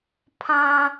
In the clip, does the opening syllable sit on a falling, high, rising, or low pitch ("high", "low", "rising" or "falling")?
high